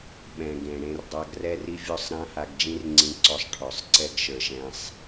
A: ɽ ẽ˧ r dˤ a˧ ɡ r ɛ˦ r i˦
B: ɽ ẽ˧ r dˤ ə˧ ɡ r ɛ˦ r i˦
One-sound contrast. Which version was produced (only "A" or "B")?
A